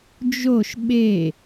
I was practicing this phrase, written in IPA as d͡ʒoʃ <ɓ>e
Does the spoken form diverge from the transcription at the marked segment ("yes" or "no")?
no